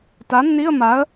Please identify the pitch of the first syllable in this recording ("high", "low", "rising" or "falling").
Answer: rising